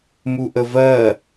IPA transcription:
m u ʔ ə v ɜ

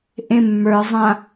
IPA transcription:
ʔ ẽ mː ə˞ zˤ ã

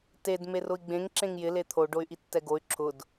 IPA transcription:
t e d m e r ʊ i̯ ɡ͡b ẽ ŋ ǁ ẽ ŋ j ɪ l e t̪ʰ o ɖ o y̯ ʔ i tː ɛ ɡ o y̯ ǁʰ ʊ d

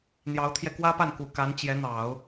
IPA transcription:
n̪ j ɑ˧˥ ʊ̯ t̪ʰ j ɛ˧ k w ä˥ p a˥˩ n k u˨˩ k a˧˥ n t͡ɕ j ɛ˧˥ n̪ ɑ˨˩˦ ʊ̯

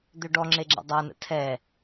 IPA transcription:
d̪ ø ɖ ɔ ŋ͡ǁ e ɡ͡ǁ ḛ dˤ a n ə̰ tʰ ɛ

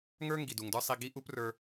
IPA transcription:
ŋ ə˞˦ ŋ ɡ i˨ d u˨ ŋ d ə˞˦ sˤ i˧ ɡ i˦ ʔ u˦ p r ə˞˧

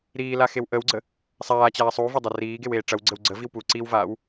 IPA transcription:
ɾ iː l a x e w ʔ ə w ɡ͡ǀ ə | sˤ aː t͡ɕ aː sˤ u v ɐ dˤ ɐ r iː ɡ e w eː ʈ͡ʂ ɐ w ɡ͡ǀ ə w ɡ͡ǀ ə v i w p u ǀ i w v aː w

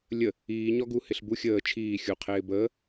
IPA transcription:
lʲ ə | iː ɲ ɔ ɡ u h ɪ ɬ b u xʲ əː t͡ʃʰ iː xʲ u qʰ ɪː b əː

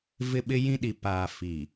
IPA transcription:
v ɪ˦ ɓ ɪ˦ j ĩ˦ ɗ i˨ p aː˨ f i˨

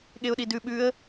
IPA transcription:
ɠ e ʊ̯ ɗ i d ʉ ɓ ʉ ə̯

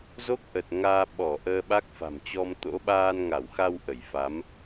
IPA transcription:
z o˦˥ k̚ ʔ ə˨˩ t̚ ŋ aː˧ ɓ ɔ˧˩ ʔ əː˧ ɓ a˦˥ k̚ f a̤˨˩ m t͡ɕ ɔ˧ m t̪ o̰˧˥ ɓ aː˧ n ŋ a˧˩ w x a˧ w ʔ ə˧˩ j f a˨˦ m

